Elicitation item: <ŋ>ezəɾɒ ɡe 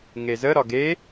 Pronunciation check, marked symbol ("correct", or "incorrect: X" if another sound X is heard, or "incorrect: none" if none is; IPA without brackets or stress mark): correct